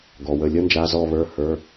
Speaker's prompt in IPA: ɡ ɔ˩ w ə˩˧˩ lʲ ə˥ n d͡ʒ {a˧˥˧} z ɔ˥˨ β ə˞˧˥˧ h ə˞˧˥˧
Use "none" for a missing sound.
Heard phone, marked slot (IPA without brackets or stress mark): a˧˥˧